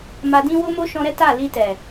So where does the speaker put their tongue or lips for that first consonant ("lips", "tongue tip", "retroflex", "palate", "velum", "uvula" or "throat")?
lips